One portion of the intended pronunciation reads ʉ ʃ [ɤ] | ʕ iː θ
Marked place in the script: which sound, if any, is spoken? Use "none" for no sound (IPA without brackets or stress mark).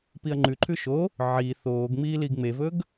o